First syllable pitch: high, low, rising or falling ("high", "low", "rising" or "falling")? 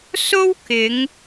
high